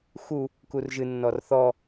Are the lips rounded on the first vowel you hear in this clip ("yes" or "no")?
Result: yes